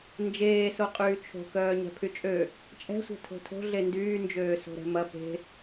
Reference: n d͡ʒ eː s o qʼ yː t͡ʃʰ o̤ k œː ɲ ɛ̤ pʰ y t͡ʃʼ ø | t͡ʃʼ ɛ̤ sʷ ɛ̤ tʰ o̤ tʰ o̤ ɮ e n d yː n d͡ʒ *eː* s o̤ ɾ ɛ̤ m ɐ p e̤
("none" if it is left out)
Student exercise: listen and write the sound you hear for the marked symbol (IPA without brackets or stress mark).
øː